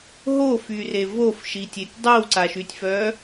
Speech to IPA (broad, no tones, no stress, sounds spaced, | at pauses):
ɦ o f y r e v o f ʃ i tʲ e tʲ dˤ i w ǀ a ʃ y tʲ f œ